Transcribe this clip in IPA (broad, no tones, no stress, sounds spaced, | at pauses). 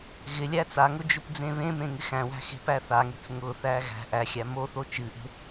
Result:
ɣ ɪ lʲ æ t͡s a ŋ ʊ d͡ʒ ʊ p d͡z ẽ β ẽ m ẽ ŋ ɪ x æ̃ w æ̤ x e̤ p æ θ a ŋ e̤ t͡s ŋ ʊ θ æ ɣ æ̤ ʔ æ xʲ æ m o θ o t͡ʃ ɨ ʔ e̤